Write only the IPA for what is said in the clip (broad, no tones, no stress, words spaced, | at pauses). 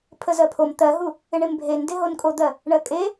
pʰəzɜpʰom t̪ɜɦu | ɪɳembʱen deɦonkʼod̪ɜ | ɳɜkʼe